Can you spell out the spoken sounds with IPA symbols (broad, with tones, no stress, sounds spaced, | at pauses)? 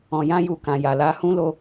ɔ̃˨ j ã˧ j u˨ k ã˨ j a˨ l a˨˦ h ũ˦ l o˧